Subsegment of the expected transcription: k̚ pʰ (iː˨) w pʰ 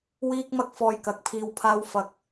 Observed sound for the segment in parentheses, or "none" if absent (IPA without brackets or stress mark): iː˧